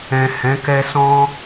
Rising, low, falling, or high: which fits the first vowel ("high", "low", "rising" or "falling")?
low